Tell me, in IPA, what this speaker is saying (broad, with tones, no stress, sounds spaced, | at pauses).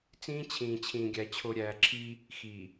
t͡s ĩː˦ t͡ɕʰ ĩː˨ t͡ɕʰ ĩː˨ ɡʲ æ˨ t͡ɕʰ o˨ ɾʲ æː˨ ǁʰ i˦ | x i˨